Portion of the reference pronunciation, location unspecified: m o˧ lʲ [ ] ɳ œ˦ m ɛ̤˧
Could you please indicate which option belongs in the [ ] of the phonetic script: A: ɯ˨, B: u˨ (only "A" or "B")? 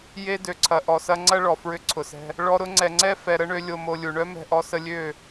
B